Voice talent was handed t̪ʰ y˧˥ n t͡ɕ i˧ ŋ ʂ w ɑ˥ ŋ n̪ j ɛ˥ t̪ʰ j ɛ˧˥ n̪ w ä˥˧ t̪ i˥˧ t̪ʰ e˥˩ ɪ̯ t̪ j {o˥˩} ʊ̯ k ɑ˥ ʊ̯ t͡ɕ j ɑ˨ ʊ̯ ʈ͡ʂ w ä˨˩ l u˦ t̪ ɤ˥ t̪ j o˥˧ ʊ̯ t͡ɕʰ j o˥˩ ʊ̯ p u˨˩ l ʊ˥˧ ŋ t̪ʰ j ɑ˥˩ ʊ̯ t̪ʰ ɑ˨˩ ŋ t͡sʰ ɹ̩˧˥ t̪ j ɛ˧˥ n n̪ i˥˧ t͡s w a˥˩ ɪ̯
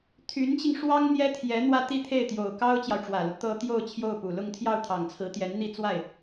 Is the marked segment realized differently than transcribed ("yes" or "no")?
yes